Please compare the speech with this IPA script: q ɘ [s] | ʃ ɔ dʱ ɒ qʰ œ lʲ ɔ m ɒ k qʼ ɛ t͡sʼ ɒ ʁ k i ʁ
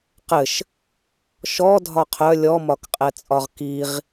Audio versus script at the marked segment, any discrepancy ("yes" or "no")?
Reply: yes